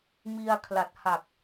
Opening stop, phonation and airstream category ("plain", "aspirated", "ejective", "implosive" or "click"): aspirated